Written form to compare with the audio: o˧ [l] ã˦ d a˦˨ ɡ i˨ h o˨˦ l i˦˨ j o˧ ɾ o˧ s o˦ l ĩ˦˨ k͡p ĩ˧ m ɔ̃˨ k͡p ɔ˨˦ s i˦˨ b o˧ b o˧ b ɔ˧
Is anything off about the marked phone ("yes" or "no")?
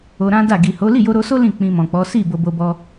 yes